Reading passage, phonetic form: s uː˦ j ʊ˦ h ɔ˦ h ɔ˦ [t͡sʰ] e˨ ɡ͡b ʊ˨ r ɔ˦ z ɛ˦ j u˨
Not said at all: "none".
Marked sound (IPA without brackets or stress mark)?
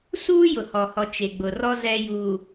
t͡ʃ